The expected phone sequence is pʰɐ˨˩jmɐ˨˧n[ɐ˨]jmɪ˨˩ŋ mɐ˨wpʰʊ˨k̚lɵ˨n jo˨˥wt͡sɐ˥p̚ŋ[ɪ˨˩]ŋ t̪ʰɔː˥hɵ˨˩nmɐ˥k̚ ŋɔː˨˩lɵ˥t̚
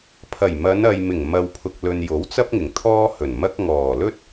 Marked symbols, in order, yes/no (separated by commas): yes, yes